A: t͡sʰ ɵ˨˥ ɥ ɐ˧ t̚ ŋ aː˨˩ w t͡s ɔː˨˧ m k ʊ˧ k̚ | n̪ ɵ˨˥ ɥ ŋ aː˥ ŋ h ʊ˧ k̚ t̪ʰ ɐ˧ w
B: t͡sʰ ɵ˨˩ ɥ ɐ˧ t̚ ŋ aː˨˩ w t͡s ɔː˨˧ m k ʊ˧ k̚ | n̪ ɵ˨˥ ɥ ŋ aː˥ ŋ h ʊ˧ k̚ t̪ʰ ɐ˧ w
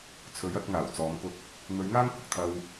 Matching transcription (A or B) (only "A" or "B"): A